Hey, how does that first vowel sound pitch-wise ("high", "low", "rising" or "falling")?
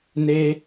high